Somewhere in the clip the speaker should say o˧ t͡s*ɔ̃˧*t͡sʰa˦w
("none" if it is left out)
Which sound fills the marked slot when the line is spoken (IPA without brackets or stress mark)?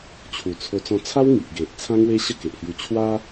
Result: ɔ̃˧